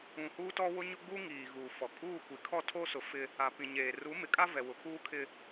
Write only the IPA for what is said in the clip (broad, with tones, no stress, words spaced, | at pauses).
ũ˨huː˦tɔ˦ wʊ˦ɲʊ˦ɡ͡bu˦ŋiː˨ ɣuː˨fɔ˨ kʼuː˦˨kʷi˨ kʰɔ˦˨tʰo˦sʊ˨˦ fɪ˦ | a˨pĩ˨ ɲeː˨ ru˨˦ mɪ˨kʼa˦ vɛ˨wʊ˨˦kuː˦kʰɪ˦